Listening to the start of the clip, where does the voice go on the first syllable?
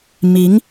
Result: rising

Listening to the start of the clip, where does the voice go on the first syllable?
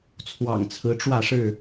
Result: low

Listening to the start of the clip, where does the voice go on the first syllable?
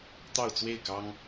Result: falling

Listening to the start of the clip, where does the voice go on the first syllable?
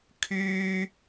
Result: high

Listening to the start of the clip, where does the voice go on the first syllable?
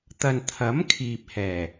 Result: low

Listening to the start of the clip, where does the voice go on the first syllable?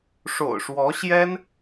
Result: low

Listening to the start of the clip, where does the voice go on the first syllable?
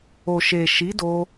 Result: low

